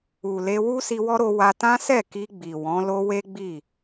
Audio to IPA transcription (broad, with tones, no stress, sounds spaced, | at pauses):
u˨ l e˧ w u˦ s i˧ w ɔ˦ ɾ o˧ w a˧ t ã˦ s ɛ˦˨ k i˧ ɡ͡b i˨ w ɔ̃˨˦ l o˦ w e˦ ɡ͡b i˦˨